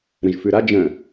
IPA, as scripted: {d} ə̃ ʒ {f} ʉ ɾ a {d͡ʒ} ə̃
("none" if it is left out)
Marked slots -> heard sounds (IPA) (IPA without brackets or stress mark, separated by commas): ɾ, f, d͡ʒ